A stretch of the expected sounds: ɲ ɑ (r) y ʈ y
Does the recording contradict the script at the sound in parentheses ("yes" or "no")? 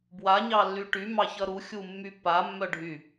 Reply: yes